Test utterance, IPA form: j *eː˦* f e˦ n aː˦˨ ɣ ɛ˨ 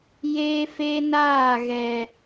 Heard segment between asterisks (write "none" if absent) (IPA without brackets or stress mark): eː˦